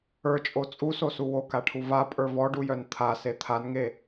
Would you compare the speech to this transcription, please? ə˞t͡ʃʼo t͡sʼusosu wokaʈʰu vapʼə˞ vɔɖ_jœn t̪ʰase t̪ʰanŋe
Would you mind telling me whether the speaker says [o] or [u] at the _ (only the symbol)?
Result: u